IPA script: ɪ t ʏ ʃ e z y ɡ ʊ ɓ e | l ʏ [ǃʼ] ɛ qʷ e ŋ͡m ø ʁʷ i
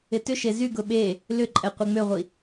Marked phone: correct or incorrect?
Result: correct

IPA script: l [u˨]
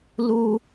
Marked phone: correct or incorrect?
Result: incorrect: u˦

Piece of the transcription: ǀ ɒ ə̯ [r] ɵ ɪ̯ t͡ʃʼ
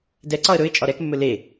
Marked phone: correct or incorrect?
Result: incorrect: ɾ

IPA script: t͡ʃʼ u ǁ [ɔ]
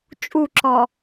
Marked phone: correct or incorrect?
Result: correct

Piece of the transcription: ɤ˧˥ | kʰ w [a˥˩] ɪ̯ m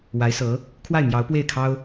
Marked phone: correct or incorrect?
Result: correct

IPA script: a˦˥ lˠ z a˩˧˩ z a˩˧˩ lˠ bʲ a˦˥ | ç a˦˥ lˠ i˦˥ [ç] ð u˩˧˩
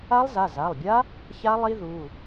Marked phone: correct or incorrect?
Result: incorrect: none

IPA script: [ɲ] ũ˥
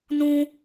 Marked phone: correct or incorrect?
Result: incorrect: n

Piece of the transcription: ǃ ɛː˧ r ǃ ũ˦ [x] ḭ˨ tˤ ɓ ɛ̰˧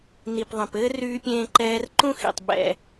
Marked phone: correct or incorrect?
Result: correct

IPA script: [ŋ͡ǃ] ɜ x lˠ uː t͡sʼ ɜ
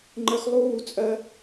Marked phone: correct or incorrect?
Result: correct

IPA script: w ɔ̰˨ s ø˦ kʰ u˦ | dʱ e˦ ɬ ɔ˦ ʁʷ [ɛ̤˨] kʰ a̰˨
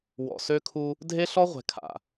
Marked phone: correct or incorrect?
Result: correct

